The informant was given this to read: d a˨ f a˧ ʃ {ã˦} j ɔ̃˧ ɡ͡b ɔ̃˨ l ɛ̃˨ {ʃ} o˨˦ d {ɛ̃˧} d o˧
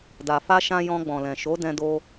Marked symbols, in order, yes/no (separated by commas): no, yes, yes